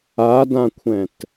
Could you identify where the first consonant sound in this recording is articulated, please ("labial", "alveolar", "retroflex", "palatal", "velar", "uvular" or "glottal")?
alveolar